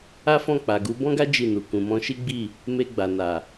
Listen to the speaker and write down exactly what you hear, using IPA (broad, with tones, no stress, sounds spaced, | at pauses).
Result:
a˦ f ɔ̃˦˨ k͡p a˨ ɡ u˨˦ b ɔ̃˦ ɡ a˦ d͡ʒ i˦˨ n u˨ k ũ˨ m ɔ̃˧ ʃ i˦ ɡ͡b i˦˨ | m e˧ ɡ͡b a˨ n a˨